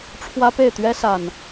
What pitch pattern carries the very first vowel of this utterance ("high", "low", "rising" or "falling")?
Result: high